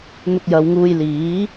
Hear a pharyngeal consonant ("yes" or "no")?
no